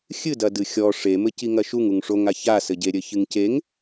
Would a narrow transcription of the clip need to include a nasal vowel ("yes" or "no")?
no